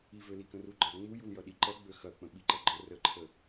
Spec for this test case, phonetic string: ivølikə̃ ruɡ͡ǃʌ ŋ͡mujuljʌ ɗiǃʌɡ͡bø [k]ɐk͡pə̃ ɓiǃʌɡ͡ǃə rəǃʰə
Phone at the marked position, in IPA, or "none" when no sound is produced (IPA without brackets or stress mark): x